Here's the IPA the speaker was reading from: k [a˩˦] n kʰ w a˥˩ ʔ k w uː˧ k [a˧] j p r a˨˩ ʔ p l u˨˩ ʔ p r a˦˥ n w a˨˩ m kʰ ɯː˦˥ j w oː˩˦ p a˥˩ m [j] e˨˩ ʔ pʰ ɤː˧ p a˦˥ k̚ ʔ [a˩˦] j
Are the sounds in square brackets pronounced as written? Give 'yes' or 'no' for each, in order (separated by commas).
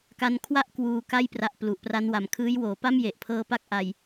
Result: no, no, yes, no